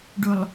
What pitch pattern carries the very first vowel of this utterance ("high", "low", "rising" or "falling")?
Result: low